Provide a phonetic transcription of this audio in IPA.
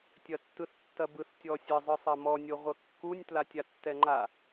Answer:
tʲ ɐ tː ɯ θ tː ɐ b ɯ θ tʲ ɔ sʲ ə zˤ ɯ sˤ ɐ m ɔ nʲ o ʁʷ ə kː u nʲ t l a tʲ a tː ɛ ŋ͡ǃ a

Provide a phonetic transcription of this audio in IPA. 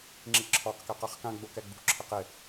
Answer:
ŋ͡ǁ i ǁʰ ɔ q k ɛ q a χ k ã ɡ͡b o k ɛ ɡ͡b ṳ ǁʰ e q ɪ

